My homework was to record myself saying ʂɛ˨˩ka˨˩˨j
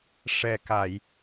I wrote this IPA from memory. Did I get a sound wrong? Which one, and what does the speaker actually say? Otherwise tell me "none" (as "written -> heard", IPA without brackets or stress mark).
none